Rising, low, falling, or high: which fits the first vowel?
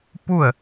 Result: falling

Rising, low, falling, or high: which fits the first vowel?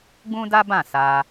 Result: high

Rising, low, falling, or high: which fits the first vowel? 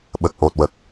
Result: low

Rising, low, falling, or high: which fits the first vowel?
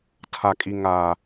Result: low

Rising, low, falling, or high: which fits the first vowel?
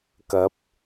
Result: rising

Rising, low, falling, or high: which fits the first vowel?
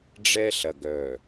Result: high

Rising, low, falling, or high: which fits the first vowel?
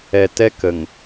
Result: low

